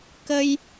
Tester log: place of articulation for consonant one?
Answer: velar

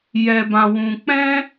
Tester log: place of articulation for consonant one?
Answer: palatal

